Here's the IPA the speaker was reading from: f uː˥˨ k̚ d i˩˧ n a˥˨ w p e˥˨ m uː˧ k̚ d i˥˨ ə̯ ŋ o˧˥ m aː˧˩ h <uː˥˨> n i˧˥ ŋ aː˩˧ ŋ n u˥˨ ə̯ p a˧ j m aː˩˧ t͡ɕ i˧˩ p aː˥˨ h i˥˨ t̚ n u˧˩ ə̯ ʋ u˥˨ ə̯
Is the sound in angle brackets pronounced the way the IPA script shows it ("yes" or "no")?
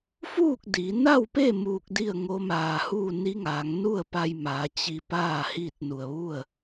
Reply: yes